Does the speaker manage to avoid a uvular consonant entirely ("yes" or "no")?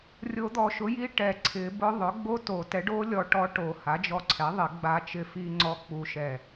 yes